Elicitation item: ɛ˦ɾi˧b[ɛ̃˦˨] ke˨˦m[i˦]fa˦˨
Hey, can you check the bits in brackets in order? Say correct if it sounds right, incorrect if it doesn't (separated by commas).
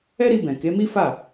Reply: incorrect, correct